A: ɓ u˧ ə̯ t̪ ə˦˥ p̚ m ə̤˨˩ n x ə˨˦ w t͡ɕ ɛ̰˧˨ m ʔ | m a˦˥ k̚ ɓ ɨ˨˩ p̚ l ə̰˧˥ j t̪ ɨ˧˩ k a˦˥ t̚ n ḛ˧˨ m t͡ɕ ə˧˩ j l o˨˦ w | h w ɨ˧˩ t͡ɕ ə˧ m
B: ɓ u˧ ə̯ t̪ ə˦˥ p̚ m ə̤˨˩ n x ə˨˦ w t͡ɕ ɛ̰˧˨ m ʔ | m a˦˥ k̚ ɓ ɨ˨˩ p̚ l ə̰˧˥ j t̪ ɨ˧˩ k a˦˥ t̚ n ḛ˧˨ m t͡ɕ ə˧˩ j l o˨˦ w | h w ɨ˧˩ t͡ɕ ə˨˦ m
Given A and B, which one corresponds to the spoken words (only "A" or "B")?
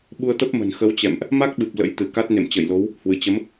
B